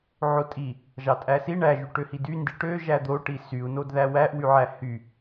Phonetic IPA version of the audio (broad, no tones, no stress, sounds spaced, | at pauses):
ʕ o tʼ i | ʒ ɑ tʼ æ s i ɳ æ ʒ y ʈ ø h i d y n d i ʈ ø ʒ æ d̪ o ʈ i s y u̯ n o d ð æ w æ ʔ w y ʕ æ h y